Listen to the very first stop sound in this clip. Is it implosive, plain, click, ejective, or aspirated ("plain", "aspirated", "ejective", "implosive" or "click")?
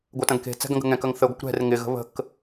plain